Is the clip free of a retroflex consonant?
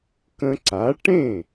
no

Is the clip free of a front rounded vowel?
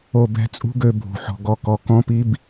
no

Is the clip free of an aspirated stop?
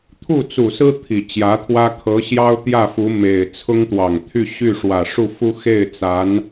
no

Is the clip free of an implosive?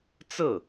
yes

